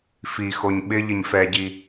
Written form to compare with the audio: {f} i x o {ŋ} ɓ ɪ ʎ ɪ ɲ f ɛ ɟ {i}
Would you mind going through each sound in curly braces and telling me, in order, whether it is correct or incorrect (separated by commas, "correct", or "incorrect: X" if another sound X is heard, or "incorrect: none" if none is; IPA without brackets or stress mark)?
correct, incorrect: ɲ, correct